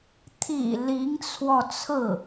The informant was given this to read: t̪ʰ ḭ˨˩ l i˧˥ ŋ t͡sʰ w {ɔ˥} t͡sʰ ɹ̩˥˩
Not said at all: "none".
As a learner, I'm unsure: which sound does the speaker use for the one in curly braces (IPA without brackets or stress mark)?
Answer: ɔ˧